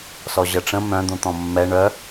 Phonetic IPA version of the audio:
sɔʑəʈ͡ʂə̃ mœ̃ d̪ũt̪ɔ̃mːɛ ɳœ

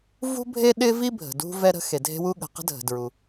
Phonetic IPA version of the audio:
vṳ˥bʱe˥ɗɪ˥vi˥ bʱə̤˩dṳ˥ vɛ˥ɾə̤˥ xe˩dʱe̤˥wu˥ɠə̤˩ qə̤˥dʱə̤˩ dɹu˩

